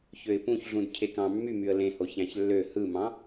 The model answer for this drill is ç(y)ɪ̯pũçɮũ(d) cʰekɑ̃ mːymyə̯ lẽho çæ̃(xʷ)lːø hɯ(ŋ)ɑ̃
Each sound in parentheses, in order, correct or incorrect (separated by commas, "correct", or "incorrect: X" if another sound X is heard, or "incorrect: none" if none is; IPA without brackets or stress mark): incorrect: ø, correct, incorrect: ç, incorrect: m